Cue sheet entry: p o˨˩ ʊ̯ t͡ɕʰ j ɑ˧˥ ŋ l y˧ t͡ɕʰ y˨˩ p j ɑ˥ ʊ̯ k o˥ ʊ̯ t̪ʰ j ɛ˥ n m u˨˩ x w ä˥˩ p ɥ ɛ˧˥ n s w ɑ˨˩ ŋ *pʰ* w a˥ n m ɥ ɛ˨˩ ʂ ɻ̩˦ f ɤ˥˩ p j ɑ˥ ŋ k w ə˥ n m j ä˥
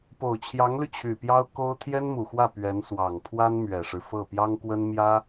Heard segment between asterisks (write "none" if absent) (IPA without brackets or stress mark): pʰ